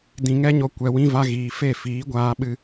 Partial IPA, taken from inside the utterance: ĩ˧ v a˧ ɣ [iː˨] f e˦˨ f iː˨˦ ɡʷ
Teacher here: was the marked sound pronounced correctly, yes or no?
yes